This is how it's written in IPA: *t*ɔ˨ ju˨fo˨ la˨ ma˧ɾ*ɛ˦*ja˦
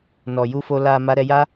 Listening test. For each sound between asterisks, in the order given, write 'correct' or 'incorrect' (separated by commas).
incorrect, incorrect